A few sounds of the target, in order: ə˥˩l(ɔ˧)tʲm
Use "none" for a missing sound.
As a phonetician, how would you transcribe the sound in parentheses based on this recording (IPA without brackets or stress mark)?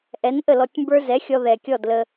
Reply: ɔ˧